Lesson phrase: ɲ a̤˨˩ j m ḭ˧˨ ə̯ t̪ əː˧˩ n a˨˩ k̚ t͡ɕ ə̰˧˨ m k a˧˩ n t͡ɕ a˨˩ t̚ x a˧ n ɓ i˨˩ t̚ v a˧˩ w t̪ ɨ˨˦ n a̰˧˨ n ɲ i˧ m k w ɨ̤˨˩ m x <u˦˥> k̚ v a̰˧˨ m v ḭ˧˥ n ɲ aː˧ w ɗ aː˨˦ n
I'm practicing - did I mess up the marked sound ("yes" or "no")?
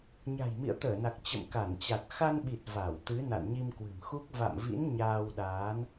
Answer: no